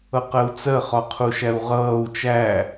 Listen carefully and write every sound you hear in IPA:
ʌ q ɜ u̯ t͡s ɜ χ ɒ qʰ u ʃ æ u̯ ʁ ʌː u̯ t͡ʃ æ

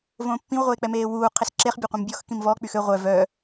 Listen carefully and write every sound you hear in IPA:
v õː pː ĩ w ʁʷ eː k͡p ɛ m eː w uː qʰ e s ǁ e χ bʲ a qʷ ĩ m bʲ ɔ x k ĩ m v ɔ k͡p y x ø ʁʷ œ v œ

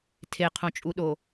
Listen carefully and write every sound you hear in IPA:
tʰ e qʰ õ t͡ʃʼ u ɗ o

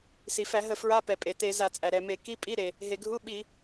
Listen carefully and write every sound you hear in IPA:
s i˩ f æ˧˩˧ ɦ ə˧˩˧ f ɹ a˧˥˧ p ɛ˩ pʼ e˩ t e˧˩˧ z a˧˩˧ t͡sʼ æ˩ ɾ ɛ˩ m e˧˩˧ k i˧˥˧ pʼ i˧˥˧ ɾ e˩ | ɦ e˩ ɡʱ u˧˥˧ ɓ i˧˩˧

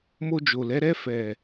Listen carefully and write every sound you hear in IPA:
m o˧ d͡ʒ o˨ l ɛ˨˦ ɾ ɛ˧ f ɛ˨

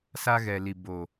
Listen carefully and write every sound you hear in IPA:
s a˦ ɣ ɛ˨ l i˨ b o˨

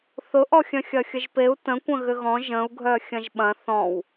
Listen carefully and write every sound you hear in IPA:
θ ʊ ʔ ɔ xʲ œ̃ xʲ ɐ xʲ ə ʒ p e u̯ t ə̃ kʷ ə̃ ɣ ʏ ɣ ɔ̃ ʒ ə̃ u̯ ɡʱ œ xʲ ɐ̃ ʒ ɓ ɐ̃ θ ɔ̃ w

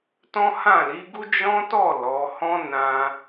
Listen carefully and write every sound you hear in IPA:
t ɔ̃˦ h ã˦˨ l i˨˦ ɡ u˦ d͡ʒ ɔ̃˦ t ɔ˦˨ l ɔ˨˦ h ɔ̃˦ n ã˧

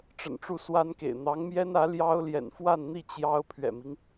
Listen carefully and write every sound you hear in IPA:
ʈ͡ʂ ə̰˨˩ n ʈ͡ʂ u˥˩ s w a˥ n k ḛ˨˩ ɪ̯ n̪ ɑ˧˥ ŋ m j ɛ˥ n ä˧˥ l j ɑ˥ ʊ̯ l j ɛ̰˨˩ n f w a˥˧ n n̪ i˥˩ t͡ɕ j ɑ˥ ʊ̯ pʰ ɥ ɛ̰˨˩ m i˦ ŋ

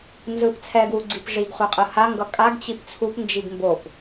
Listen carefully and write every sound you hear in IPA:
n z ɯ p t͡sʰ ɛ ɡ w u ɡ͡ǀ i p ʐ i ɡ χʷ a qʼ ɯ h a ŋ ɡ ʌ kʼ a ɡ t͡ɕ i p t͡sʰ u p n d͡ʒ i ɡ m b o p

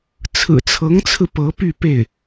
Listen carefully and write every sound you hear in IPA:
t͡sʰ ɹ̩˨˩ t͡sʰ ɤ˧˥ ŋ t͡sʰ ɹ̩˧ p ɤ˧˥ p y˥˧ p e˥˩ ɪ̯

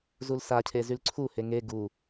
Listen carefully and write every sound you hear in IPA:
z u l s a cʰ e z y l ǀʰ u h e ŋ e ɡ u

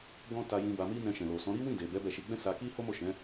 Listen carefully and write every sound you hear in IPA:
ɡ ɔ̃˦ t a˧ j ĩ˧ b a˧ m i˦ n ɛ̃˧ ʃ ɛ̃˨ l o˨ s ɔ̃˨˦ ɾ i˦ w ĩ˦˨ d e˨ b ɛ˨˦ b ɛ˦˨ ʃ i˧ ɡ͡b ɛ̃˦ s a˧ k i˦ h o˦ m o˦˨ ʃ ɛ̃˨˦

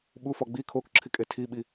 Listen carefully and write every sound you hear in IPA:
ɓ u f ɒ ɡ͡b i kʰ o k ǁʰ i kʼ e tʰ i ɓ i

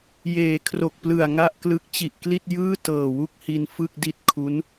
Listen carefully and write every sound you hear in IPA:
j eː˩˦ kʰ r o˨˩ k̚ p l ɯ˨˩ a̯ ŋ a˥˩ ʔ k l ɯ˦˥ k̚ t͡ɕ i˨˩ ʔ k l i˥˩ t̚ j ɯː˥˩ t ɤː˨˩ w u˥˩ k̚ h i˧ n f ɯ˥˩ k̚ d i˥˩ t̚ kʰ u˦˥ n

